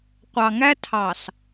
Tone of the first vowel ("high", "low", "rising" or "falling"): low